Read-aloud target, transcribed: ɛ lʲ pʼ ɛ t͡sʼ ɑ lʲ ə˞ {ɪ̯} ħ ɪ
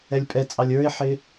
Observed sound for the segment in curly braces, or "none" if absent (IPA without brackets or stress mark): ɪ̯